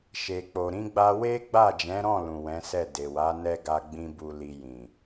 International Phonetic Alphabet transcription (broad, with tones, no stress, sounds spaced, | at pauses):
ʃ e˨ k͡p o˨ ɾ ĩ˧ ɡ͡b a˧ w e˦ ɡ͡b a˦˨ d͡ʒ ɛ̃˨˦ ɾ ɔ̃˦˨ l ũ˨ w ɛ̃˨˦ s ɛ˦˨ d e˨ w a˨˦ n ɛ˦ ɡ a˦ ɡ͡b ĩ˦ b u˧ l i˧ j ĩ˨